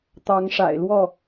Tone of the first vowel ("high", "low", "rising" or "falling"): rising